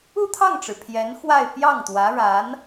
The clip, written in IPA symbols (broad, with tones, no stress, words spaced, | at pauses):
u˥˧t̪ʰɑ˥˩ŋʈ͡ʂɻ̩˩ pʰjɛ˧˥n xwa˥˧ɪ̯ pjɑ˥˩ŋt̪wä˧˥ɻa˧˥n